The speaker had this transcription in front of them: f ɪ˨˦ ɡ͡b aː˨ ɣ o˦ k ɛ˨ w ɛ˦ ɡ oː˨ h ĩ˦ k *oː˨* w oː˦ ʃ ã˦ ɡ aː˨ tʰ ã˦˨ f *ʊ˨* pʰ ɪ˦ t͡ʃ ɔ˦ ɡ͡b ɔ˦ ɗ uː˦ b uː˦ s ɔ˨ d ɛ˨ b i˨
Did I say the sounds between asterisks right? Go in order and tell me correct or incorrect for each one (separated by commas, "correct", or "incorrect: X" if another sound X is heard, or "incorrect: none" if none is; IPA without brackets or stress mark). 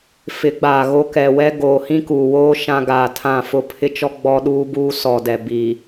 incorrect: uː˨, incorrect: ʊ˦